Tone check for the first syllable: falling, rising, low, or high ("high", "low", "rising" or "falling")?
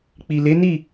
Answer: low